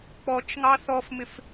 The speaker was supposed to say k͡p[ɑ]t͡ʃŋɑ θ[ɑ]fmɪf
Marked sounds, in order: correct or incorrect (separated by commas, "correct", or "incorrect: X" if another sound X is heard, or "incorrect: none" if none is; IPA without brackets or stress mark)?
incorrect: ɔ, incorrect: ɔ